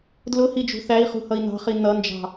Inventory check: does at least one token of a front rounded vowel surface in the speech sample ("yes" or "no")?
no